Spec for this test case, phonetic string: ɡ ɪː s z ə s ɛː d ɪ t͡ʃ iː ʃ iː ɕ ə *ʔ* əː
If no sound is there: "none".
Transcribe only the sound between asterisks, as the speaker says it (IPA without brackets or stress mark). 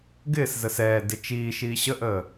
ʔ